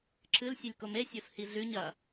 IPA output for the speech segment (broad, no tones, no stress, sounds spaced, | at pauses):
ǁʰ ɨ l sʲ ɨ lʲ k o m e sʲ o s h i ɮ ʉ ɲ ɐ